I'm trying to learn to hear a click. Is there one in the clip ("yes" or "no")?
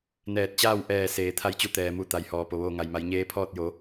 no